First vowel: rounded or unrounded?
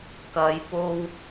unrounded